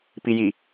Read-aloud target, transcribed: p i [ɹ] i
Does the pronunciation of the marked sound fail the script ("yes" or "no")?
yes